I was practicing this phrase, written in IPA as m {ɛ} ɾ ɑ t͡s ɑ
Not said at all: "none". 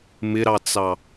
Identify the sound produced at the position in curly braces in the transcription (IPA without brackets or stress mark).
ɪ